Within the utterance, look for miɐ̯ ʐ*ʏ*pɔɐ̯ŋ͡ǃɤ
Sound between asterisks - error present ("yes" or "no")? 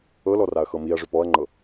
no